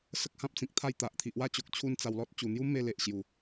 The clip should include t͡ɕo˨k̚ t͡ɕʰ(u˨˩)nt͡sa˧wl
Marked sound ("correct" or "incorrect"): incorrect